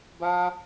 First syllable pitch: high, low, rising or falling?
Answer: high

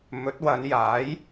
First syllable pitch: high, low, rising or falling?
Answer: rising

